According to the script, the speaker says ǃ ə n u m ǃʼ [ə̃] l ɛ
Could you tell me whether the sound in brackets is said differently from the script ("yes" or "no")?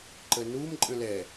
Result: no